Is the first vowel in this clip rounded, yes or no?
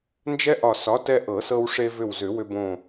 no